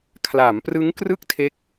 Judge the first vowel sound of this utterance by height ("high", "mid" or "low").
low